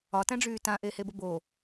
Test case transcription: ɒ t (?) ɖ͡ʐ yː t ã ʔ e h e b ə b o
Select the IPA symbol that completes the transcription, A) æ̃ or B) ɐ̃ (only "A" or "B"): A